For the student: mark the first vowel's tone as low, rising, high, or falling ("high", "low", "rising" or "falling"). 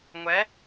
rising